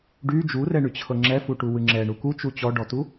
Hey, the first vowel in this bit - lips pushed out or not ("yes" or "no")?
yes